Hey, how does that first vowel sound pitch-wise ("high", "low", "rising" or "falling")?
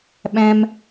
high